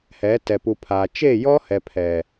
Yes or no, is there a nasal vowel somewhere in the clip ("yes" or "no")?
no